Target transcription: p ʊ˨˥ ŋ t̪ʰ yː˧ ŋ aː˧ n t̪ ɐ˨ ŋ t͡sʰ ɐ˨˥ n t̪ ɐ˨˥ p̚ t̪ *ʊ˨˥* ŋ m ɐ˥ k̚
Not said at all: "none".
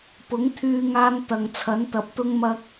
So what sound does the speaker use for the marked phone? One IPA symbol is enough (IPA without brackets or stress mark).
ʊ˥